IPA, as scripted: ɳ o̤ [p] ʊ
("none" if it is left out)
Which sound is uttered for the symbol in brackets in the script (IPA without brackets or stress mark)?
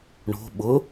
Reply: ɓ